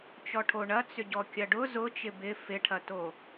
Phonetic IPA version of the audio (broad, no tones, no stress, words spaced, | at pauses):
t͡ʃɔʈʰoɳɐ t͡sʏɟɔkʲɐɖʊ zʊ t͡ʃɪbɪ fɪʈʰɐto